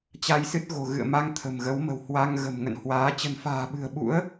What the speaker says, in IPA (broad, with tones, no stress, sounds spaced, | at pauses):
t͡ɕ a˧ j s ɨ˦˥ t̚ ɣ o̤˨˩ ɣ ɨ̰˧˨ ə̯ m a˧ ŋ t̪ʰ ə̤˨˩ m ɣ ə˨˦ w m ə̤˨˩ w h w a˧ ŋ ɣ ə̤˨˩ m ŋ ə̰˧˨ n h w aː˨˦ t͡ɕ ə̤˨˩ n f a̤ː˨˩ ɓ ɨ̤˨˩ ə̯ ɓ ṵ˧˥ ə̯